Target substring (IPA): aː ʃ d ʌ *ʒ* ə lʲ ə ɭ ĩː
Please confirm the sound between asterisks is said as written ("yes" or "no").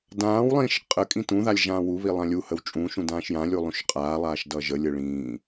yes